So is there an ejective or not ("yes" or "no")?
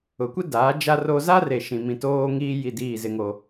no